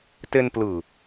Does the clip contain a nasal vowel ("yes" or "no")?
no